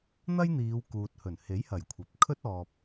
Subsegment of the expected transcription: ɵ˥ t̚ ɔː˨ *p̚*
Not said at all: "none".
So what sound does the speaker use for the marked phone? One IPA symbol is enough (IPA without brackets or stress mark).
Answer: p̚